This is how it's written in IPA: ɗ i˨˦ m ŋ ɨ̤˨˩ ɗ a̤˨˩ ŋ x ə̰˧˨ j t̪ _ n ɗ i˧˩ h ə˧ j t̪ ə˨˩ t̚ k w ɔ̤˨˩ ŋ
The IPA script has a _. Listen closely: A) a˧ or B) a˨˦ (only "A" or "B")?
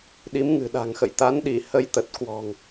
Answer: B